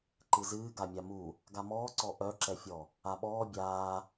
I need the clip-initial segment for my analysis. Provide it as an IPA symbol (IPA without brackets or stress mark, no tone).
ǃ